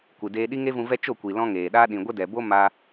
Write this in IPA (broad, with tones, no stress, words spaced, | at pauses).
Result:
kʷɨ˨deː˧ ɗi˦ŋe˦vũ˧vɛ˦ t͡ʃo˦˨kʷi˨lɔ̃˧ ŋeː˨ɗa˦ ɗĩ˨ɡʷə˦dɛ˨bo˦ ma˧